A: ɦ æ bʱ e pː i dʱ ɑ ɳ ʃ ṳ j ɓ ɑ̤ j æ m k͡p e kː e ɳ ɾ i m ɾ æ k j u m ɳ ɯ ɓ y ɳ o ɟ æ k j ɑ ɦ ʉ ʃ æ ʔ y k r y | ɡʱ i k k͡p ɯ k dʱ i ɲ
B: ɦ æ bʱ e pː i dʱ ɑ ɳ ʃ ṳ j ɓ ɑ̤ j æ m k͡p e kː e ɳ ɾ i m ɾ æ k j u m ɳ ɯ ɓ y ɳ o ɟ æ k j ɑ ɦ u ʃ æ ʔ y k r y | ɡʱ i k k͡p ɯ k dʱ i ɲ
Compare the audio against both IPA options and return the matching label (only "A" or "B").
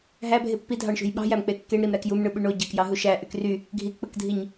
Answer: B